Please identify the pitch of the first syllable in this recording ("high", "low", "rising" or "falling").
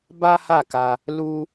high